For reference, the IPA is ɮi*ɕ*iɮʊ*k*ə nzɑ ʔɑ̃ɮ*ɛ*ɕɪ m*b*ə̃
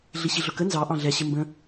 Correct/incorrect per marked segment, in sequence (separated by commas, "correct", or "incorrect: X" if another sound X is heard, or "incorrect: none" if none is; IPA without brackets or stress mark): correct, correct, correct, correct